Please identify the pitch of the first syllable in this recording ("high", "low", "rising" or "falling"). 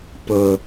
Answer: high